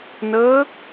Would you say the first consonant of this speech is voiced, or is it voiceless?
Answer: voiced